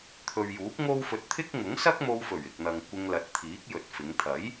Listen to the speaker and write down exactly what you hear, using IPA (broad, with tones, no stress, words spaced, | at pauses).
t̪ʰɵ˨ɥjuː˨˥k̚ ŋo˥wfɵ˧t̚ t̪ʰɪ˥k̚ ŋʊ˨˥ŋsɐ˥k̚mo˧wfɵ˨˩ɥ ɪ˨k̚n̪ɐ˨ŋ kʷɪ˧ŋlɐ˨˥t̚t̪ʰiː˨˥k̚ jɵ˨t̚fɪ˨˧ŋ t̪ʰɐ˨˥j